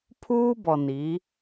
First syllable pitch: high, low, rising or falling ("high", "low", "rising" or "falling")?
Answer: high